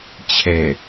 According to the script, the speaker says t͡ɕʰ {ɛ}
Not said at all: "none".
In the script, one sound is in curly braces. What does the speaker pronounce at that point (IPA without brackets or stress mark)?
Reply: ɛ